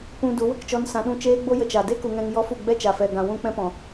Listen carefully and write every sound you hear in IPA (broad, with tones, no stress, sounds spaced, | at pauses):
p ũ˧ d u˨˦ w ə˧ k t͡ʃ ɔ˧ n s ã˧ ɗ ũ˦˨ t͡ʃ eː˦ ɡ͡b o˦ j ə˧ t͡ʃ a˨ d e˦ k u˨ ŋ ɛ̃˨ ŋ j ɔ˦ f u˦˨ ɡ͡b ɛ˦ t͡ʃ a˨ f ɛ˨ ɡ ã˨ w ũ˧ k͡p ɛ̃˧ p ɔ̃˨